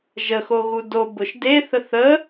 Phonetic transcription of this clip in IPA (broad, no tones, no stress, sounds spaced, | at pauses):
ʒ ə x o ɣ u d o b ʊ ʃ d e θ ə θ ə